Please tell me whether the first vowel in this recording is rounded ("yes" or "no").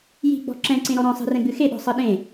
no